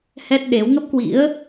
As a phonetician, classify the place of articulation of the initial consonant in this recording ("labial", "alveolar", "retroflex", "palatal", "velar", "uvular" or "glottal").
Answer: glottal